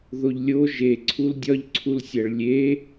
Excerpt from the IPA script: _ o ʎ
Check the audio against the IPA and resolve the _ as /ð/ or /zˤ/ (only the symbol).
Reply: ð